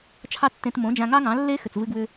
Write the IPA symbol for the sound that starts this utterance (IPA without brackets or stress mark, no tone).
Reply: t͡ʃʰ